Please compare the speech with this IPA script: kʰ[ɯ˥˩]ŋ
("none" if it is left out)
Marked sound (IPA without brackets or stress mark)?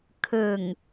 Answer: ɯ˨˩